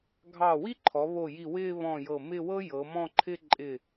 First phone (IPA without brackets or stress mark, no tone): ɡʱ